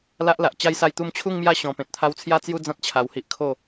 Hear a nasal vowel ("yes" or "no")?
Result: yes